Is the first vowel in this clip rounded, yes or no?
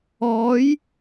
yes